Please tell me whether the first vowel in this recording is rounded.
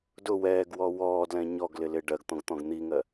yes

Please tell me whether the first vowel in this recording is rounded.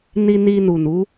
no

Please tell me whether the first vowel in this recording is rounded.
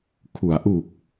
yes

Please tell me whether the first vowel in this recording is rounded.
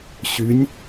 yes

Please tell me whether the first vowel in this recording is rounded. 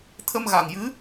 no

